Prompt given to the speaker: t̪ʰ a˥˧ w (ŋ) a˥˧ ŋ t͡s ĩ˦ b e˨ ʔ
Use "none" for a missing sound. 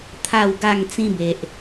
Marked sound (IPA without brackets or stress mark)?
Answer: ɡ